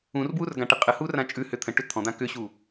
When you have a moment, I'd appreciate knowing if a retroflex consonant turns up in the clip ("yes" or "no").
yes